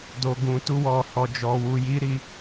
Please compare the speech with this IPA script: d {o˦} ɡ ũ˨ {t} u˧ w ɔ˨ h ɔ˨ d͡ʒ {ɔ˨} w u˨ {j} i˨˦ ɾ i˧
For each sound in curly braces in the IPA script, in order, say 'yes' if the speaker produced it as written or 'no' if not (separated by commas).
no, yes, yes, yes